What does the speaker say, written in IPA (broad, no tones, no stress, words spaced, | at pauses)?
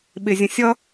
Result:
ɓɪzʲə̃ sʲʌ